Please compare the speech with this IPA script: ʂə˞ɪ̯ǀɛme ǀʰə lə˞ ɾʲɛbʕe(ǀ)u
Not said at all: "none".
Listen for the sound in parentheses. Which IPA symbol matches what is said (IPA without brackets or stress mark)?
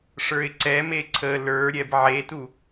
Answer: t